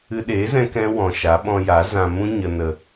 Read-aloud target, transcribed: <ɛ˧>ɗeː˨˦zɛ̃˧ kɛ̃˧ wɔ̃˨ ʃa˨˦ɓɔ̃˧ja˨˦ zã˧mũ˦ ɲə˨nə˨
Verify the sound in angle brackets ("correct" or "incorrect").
incorrect